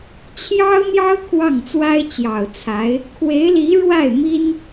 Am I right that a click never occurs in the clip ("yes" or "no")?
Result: yes